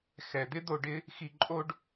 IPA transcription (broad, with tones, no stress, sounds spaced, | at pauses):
x ɛ˩ d̪ ɪ˥ d̪ o˧ ɖ ɪ˥ | x i˧ ǃʼ o˥ ɖ